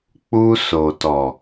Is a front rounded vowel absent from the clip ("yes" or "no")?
yes